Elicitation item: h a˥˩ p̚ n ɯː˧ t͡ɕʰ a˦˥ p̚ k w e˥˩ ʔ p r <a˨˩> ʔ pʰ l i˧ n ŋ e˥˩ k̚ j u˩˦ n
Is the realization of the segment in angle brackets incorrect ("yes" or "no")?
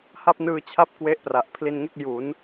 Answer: no